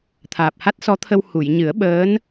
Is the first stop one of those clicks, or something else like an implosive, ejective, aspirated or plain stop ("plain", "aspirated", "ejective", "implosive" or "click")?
aspirated